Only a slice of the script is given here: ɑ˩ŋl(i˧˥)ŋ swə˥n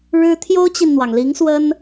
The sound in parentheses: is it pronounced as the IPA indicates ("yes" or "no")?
yes